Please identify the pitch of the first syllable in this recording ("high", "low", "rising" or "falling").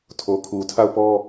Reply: low